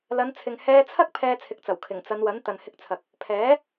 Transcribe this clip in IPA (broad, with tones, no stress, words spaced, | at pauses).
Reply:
lɐ˨˧nt͡sʰɪ˨ŋ hɛː˧t͡sʰɐ˥k̚ pʰɛː˧t͡sʰɪ˨˥k̚t͡sɐ˨˩w kʰɪ˨˩ŋt͡sɐ˨˧nwɐ˨˥n t̪ɐ˨nhɪ˧k̚t͡sʰɐ˨k̚ | pʰɛː˨˥